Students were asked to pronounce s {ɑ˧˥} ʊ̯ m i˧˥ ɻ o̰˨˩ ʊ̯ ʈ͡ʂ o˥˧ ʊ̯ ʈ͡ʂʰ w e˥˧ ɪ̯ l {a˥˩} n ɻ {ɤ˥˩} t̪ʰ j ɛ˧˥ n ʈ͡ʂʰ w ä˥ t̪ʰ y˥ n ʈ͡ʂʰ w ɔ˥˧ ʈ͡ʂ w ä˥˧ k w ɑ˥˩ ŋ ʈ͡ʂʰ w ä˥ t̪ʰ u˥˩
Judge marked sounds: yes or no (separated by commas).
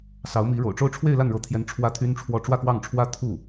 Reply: yes, yes, no